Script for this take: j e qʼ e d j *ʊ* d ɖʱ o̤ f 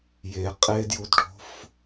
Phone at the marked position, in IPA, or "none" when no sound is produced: u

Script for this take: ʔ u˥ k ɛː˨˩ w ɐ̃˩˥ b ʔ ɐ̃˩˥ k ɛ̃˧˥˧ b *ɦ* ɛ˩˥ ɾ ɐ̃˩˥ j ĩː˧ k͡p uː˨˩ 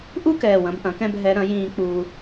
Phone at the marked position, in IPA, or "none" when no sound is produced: ɦ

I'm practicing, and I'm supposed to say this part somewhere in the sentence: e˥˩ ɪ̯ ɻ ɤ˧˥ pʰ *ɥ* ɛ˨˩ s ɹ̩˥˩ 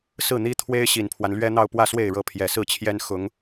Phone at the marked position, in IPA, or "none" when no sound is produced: j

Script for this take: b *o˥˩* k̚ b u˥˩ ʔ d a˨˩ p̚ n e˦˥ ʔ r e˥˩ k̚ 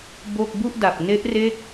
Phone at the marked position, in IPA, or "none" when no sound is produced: o˥˩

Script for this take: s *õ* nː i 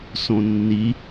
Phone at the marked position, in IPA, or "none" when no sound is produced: õ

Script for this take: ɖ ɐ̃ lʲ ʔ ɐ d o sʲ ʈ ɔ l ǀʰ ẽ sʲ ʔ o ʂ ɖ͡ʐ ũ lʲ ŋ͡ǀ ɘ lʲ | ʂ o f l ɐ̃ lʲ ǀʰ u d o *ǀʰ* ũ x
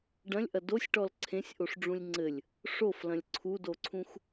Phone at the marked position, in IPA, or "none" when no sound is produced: ǀʰ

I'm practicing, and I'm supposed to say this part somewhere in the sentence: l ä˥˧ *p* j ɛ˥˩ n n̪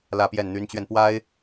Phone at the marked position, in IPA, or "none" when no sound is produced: p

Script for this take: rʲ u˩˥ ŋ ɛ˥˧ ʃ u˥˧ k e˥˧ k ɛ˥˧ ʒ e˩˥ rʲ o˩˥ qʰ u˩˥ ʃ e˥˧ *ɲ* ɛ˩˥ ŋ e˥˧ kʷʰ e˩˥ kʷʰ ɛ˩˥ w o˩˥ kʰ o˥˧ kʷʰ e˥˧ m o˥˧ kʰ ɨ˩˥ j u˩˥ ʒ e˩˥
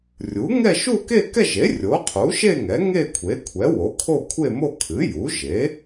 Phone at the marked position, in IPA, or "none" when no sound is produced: ŋ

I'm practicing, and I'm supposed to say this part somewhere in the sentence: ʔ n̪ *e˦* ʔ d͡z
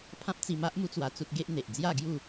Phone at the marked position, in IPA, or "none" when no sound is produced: e˨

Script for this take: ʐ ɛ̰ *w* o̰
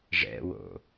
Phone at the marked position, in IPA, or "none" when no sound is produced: w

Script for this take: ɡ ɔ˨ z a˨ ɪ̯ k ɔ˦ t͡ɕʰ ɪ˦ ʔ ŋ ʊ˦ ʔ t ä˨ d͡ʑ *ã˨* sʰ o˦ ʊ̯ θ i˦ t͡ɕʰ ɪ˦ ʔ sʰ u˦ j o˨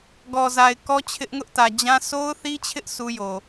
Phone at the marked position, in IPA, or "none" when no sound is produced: ã˦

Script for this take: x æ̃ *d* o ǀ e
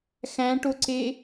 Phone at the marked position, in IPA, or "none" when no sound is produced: ʈ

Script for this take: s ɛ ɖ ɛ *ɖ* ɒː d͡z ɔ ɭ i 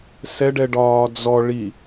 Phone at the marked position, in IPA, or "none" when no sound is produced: ɖ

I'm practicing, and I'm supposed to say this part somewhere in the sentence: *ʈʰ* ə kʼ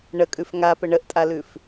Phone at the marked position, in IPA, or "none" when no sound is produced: ɳ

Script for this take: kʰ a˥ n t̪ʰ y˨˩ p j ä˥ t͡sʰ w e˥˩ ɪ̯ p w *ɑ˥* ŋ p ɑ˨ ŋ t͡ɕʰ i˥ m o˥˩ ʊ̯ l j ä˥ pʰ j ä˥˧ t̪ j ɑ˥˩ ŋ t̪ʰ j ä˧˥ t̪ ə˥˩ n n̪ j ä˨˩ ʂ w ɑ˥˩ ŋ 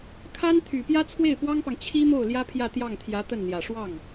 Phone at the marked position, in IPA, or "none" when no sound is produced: ɑ˥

